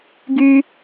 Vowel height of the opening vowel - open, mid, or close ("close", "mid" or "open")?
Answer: close